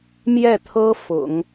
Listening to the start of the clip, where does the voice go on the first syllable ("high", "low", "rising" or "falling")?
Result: falling